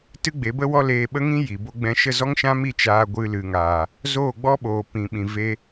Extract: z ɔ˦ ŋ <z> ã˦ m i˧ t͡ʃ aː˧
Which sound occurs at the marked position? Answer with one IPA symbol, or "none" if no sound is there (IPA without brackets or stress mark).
ʃ